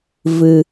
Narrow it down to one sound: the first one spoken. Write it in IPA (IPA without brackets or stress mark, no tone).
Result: v